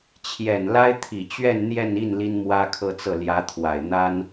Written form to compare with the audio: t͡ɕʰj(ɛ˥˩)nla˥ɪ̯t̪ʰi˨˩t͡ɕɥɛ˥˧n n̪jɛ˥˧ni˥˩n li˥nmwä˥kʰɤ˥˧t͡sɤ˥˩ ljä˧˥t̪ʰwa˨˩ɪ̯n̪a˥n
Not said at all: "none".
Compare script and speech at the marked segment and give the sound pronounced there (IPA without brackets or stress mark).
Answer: ɛ˨˩